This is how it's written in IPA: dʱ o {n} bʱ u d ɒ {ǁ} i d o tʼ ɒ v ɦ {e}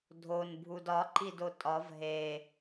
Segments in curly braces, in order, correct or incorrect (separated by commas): correct, incorrect, correct